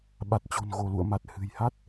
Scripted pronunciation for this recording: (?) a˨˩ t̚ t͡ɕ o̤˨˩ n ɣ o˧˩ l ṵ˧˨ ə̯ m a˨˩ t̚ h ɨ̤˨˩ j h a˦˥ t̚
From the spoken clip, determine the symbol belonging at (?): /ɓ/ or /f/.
ɓ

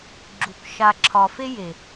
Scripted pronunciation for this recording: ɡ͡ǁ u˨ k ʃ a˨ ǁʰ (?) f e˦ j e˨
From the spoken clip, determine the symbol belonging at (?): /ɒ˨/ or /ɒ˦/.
ɒ˨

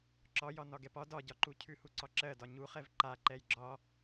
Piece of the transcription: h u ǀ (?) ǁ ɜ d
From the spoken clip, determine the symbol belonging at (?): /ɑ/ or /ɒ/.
ɒ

